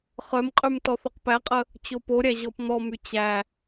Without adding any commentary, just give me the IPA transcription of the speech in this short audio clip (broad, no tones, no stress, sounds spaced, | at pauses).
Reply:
χ œ m qʼ y m t ɔ θ œ q p æ qʼ ə | t͡ɕ o p o ɾʲ æ ʑ ɔ p n̪ ɔ m y t͡ɕ æ